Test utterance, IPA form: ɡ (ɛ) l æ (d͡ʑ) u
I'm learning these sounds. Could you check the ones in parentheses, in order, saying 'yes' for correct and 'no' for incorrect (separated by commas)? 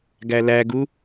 no, no